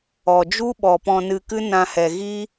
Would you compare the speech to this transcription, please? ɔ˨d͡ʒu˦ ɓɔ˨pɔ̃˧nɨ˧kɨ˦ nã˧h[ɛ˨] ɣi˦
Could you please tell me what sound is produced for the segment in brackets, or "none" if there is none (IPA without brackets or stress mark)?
ɛ˨